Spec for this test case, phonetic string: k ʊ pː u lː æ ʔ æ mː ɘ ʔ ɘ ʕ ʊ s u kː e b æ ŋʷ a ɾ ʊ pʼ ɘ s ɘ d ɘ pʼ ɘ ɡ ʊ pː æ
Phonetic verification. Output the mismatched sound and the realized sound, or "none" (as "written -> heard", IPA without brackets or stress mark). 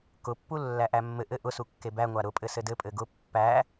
ʕ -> ʔ